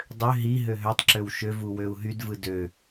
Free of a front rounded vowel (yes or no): no